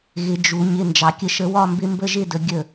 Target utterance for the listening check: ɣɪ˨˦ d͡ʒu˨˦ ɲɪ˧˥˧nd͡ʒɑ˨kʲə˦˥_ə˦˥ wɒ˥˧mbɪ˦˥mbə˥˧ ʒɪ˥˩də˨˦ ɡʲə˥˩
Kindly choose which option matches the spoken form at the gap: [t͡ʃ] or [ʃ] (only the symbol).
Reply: ʃ